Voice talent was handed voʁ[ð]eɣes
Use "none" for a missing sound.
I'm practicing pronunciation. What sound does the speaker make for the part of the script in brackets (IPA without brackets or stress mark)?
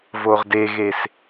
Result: d